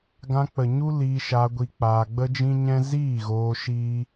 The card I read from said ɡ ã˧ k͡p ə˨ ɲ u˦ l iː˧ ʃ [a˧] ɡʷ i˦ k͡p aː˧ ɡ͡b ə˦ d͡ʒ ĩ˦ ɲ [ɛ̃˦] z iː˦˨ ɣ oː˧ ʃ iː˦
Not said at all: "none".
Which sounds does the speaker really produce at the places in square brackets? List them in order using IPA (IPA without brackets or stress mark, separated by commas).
a˧, ɛ̃˦